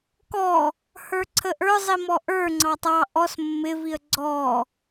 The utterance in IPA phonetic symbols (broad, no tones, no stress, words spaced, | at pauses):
kɔ | hə˞ǀʰəʔə˞ zˤimɔʔə˞ ŋ͡ǀɑtˤɑ ʔɔs mːɪviə̯ ɡ͡ǀɔ